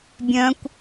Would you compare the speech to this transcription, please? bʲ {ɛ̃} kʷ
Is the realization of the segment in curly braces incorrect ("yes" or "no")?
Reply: yes